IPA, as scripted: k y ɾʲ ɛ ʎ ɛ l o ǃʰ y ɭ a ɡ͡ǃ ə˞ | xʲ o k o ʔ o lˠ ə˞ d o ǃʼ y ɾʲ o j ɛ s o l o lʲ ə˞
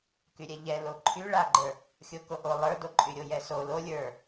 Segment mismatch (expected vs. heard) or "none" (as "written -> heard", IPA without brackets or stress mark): none